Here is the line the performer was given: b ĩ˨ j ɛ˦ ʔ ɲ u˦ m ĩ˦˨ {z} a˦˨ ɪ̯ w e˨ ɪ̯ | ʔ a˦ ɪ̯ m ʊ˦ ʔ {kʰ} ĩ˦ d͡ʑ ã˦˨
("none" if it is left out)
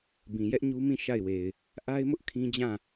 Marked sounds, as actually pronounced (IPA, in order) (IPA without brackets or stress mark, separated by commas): ʃ, kʰ